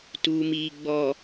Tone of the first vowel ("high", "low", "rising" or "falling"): low